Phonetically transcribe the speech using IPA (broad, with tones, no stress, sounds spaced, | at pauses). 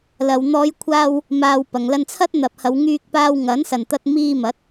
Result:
l ɐ˨ w n̪ ɔː˨˧ j kʷʰ aː˧ w | m aː˨ w p ɐ˨ ŋ l ɐ˧ n t͡sʰ ɐ˥ t̚ n̪ ɐ˨ p̚ h ɐ˨˧ w ŋ yː˧ k̚ p aː˧ w ŋ ɐ˨˥ n s ɐ˨ n t̪ ɐ˧ t̚ m iː˧ m ɐ˨˥ t̚